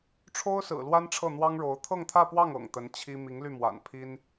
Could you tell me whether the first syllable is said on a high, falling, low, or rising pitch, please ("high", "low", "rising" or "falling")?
high